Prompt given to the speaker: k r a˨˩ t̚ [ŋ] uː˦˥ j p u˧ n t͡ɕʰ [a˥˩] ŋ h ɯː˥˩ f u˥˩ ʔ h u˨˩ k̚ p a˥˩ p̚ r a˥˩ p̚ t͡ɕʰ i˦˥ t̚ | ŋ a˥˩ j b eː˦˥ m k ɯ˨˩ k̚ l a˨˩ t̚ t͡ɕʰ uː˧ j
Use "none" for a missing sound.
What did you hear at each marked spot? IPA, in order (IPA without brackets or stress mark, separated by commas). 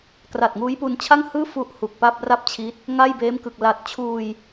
ŋ, a˥˩